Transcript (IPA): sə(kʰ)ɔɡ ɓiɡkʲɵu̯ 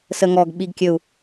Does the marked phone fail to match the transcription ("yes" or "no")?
yes